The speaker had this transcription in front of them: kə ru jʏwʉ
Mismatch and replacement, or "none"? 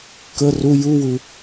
ʏ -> u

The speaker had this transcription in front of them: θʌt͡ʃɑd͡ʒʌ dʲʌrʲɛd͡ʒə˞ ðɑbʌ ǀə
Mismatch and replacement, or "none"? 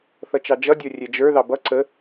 none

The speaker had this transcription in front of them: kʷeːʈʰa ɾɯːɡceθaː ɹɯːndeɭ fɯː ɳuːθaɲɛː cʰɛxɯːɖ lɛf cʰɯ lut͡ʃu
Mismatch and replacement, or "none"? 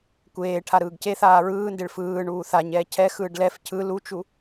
none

